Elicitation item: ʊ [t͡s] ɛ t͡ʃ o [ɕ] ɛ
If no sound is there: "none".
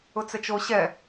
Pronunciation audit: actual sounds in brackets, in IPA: t͡s, ɕ

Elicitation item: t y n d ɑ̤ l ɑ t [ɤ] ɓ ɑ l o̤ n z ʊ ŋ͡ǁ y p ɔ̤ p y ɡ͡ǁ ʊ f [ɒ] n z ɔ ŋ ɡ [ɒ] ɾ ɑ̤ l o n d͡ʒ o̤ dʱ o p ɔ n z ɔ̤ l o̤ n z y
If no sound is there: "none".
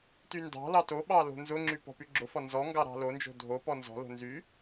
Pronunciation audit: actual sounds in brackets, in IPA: o, ɒ, ɑ

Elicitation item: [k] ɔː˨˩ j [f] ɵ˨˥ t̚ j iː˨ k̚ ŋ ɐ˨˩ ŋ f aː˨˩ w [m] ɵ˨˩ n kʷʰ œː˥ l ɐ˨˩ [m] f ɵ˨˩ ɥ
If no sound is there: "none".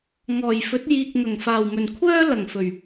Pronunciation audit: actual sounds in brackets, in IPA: ŋ, f, m, ŋ

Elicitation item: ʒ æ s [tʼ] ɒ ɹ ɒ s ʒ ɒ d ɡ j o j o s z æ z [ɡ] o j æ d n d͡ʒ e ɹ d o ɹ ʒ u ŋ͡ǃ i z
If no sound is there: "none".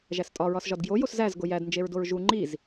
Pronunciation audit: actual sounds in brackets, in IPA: tʼ, ɡ

